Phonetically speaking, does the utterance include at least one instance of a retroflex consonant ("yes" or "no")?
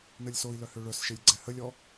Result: yes